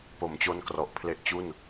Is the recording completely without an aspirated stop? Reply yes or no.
no